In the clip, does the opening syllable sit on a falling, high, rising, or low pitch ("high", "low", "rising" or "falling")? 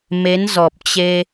rising